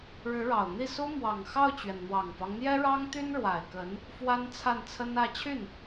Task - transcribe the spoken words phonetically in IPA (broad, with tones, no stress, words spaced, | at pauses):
ɻɻ̩˧˥ɻɑ˨˩ʊ̯n̪i˥˩ su˥ mwɑ˨˩ŋxɑ˥˩ʊ̯t͡ɕɥɛ˩n n̪wɑ˨˩ŋfɑ˦ŋ n̪jɛ˥ɻɑ˥ŋt̪y˥n ɻwa˨˩ɪ̯kə˧˥n | fwa˥nt͡sʰa˥˩nt͡sʰə˥nä˥˧ t͡ɕʰy˥˩n